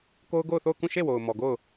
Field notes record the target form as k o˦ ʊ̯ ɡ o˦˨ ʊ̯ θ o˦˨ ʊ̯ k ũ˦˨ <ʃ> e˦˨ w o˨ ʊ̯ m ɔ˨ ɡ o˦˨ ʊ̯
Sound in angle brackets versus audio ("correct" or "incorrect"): correct